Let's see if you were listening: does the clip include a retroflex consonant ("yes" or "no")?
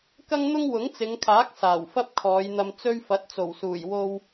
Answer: no